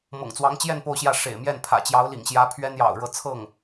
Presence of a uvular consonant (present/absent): absent